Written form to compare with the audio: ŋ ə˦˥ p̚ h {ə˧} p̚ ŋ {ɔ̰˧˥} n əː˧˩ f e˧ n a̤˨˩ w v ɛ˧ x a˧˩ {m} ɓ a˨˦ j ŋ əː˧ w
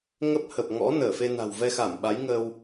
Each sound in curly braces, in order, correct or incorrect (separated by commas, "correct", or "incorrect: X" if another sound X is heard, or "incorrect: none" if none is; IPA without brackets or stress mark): incorrect: ə˨˩, correct, correct